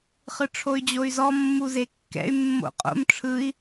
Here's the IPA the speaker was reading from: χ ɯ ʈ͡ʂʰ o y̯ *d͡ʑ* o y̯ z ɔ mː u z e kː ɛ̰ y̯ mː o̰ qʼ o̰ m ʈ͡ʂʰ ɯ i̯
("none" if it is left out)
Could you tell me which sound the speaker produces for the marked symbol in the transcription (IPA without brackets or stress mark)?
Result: d͡ʑ